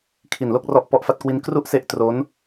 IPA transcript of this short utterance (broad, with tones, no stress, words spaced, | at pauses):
kʰi˨˩nlo˥˩k̚rɔ˦˥ʔ pɔ˦˥ʔfa˦˥t̚kwi˦˥n kru˥˩ʔse˦˥ʔ tro˦˥n